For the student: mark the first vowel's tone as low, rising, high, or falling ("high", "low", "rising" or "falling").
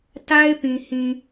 high